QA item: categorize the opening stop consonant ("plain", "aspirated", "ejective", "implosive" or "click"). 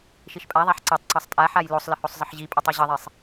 ejective